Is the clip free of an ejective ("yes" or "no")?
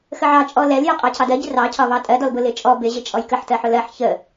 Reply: no